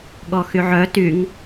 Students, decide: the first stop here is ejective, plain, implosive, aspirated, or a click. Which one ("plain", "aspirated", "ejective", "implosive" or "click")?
implosive